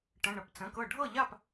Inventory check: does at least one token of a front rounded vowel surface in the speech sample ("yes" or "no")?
no